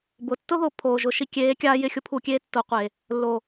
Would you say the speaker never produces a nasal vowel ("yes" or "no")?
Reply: yes